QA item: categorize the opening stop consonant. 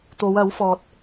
plain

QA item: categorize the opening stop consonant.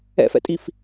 ejective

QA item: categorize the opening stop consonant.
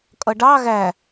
ejective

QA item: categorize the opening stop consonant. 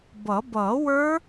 plain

